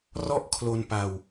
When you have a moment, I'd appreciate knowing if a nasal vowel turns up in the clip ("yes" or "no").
no